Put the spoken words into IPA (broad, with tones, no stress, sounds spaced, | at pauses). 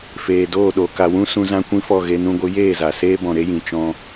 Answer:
f eː˨ d oː˦˨ ɗ o˨ k a˨ w ũ˦ s ũ˧ z ã˦ kʷ ĩ˦ f ɔ˦˨ ɣ e˧ n ũ˧ ɡʷ ɨ˨˦ j eː˦˨ z a˨ s eː˦ b ɔ̃˨ ɾ e˦ j ĩ˨ t͡ʃ ɔ̃˧